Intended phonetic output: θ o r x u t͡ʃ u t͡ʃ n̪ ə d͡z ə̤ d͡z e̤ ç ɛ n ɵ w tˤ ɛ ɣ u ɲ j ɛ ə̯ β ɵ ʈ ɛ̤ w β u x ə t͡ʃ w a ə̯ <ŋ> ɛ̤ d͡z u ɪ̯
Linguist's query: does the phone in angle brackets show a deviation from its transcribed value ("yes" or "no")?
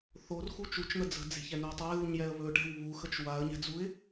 yes